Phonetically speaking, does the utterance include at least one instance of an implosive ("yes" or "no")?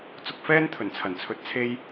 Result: no